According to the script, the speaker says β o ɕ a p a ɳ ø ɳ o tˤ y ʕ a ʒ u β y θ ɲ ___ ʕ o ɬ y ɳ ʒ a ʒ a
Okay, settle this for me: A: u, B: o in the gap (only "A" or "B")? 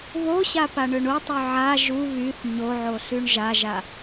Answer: B